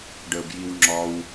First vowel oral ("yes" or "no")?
yes